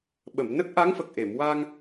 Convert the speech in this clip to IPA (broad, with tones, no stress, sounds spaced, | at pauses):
ɓ ə˨˩˨ m n ə˦˥ k̚ ʔ a˧˥ ŋ f ə˨˩ k̚ ʔ e˨˩˨ m w a˧ ŋ